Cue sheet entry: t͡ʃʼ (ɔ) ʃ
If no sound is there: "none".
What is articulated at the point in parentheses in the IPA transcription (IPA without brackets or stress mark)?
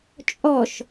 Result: ɔ